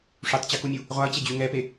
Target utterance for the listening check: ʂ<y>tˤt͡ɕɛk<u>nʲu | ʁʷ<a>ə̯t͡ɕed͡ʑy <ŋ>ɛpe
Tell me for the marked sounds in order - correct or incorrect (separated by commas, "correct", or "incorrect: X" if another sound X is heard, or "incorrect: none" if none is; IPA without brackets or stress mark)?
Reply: correct, correct, correct, correct